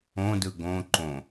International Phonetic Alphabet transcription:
õdɯ ɡõ ǃõ

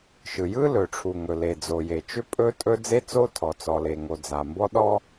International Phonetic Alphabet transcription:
ʃɯ˩jɯ˥ lɵ˩ʈ͡ʂʰu˩ŋɵ˩le˩ d͡zo˩je˩t͡ʃʏ˥ pʼɵ˥tʼɵ˥ d͡ze˥t͡so˥tʰɔ˩ t͡sɔ˩le˩ŋo˩ d͡za˩mbɔ˥ ɗɔ˥

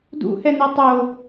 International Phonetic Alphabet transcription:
dṵhɛnɛ tˤo

